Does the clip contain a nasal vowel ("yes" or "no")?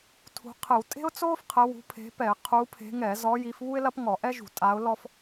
no